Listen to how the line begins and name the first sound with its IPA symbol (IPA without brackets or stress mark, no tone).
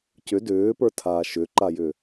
c